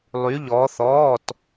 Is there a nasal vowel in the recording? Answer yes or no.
no